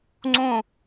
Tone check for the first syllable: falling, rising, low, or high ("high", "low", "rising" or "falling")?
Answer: falling